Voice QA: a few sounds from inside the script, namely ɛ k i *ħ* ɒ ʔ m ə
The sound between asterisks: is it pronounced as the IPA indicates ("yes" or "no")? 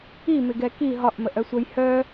no